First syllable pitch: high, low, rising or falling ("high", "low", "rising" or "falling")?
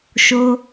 high